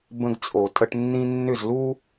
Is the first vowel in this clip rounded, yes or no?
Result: no